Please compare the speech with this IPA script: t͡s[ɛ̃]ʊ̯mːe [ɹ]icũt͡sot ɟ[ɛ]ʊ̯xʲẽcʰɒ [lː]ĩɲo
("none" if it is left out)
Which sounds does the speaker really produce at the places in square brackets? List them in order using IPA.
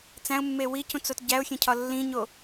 æ̃, w, æ, lː

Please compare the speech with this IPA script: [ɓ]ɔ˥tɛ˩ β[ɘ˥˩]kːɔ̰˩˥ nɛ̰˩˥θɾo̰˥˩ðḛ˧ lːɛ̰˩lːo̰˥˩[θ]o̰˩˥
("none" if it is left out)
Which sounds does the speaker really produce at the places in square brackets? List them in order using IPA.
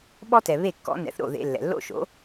ɓ, e˥˩, ʃ

